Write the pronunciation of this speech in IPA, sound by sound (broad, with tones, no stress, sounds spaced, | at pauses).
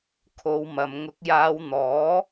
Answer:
kʰ o˨˧ w m ɐ˨ m ŋ ʊ˨˥ k̚ j aː˨˧ w n̪ ɔː˨˥